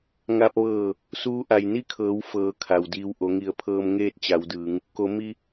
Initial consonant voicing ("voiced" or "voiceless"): voiced